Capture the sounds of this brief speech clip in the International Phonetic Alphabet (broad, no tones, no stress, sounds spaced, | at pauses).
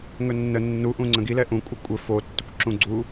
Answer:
ŋ ɵ nː ə nː u ʔ ũ ŋ͡ǀ ə̃ ɡ i l ɛ ʔ ũ kʷʼ ə kʷʼ ɘ f o tː ɵ kʷ ǁ ũ ɡ͡ǀ u